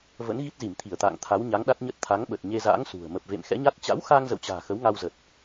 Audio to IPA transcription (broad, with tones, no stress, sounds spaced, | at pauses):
v ə̰˧˥ n ɣ i˦˥ t̚ z i˧˩ m t̪ʰ i˧˩ ə̯ t̪ a̰ː˧˨ ŋ t̪ʰ a˨˦ w ɲ a˨˦ ŋ ɗ a˦˥ t̚ ɲ ə˦˥ t̚ t̪ʰ a˨˦ ŋ ɓ ə˨˩ t̚ ɲ e˧ z a̰ː˧˥ ŋ s ṳ˨˩ ə̯ m ə˨˩ p̚ v ḛ˧˨ m x ɛ̰˧˥ ɲ a˦˥ t̚ t͡ɕ a̰˧˥ w x aː˧ ŋ z ə̰˧˨ w t͡ɕ a̤ː˨˩ x ə˨˦ w ŋ a˧ w z ə˨˩ t̚